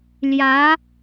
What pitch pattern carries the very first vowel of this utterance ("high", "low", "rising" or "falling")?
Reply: rising